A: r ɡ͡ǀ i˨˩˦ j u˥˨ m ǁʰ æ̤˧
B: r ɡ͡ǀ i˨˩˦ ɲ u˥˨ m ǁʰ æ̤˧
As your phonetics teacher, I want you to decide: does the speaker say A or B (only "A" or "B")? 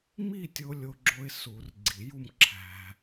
A